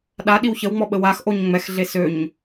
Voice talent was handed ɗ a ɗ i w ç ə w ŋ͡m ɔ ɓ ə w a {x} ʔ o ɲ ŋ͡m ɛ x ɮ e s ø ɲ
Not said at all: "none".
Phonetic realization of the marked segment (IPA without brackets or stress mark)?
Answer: x